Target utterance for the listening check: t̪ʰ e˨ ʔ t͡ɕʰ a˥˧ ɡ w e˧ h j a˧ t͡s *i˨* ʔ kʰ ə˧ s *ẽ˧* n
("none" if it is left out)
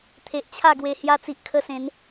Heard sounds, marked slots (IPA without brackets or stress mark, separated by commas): i˨, ẽ˨˦